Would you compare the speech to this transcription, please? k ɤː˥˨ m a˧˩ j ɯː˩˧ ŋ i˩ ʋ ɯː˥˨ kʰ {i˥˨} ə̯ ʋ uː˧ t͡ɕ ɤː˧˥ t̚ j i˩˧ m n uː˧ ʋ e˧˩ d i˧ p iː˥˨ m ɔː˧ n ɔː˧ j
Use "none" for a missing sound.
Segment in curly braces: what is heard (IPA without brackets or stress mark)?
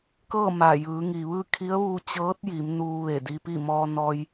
i˧˥